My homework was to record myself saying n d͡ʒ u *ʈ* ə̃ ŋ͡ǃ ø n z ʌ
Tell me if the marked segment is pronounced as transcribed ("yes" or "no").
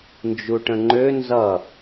yes